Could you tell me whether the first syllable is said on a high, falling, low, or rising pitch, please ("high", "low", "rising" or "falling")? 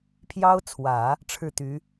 high